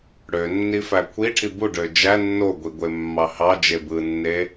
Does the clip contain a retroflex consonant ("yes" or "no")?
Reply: yes